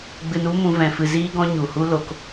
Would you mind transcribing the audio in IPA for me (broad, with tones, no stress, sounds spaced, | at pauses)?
ɡ͡b ɨ˧ n u˦ m ũ˧ v ɛ̃˨ f ɨ˨ z iː˧ ɡ ɔ̃˧ ɲ u˨ h u˦ l o˧ k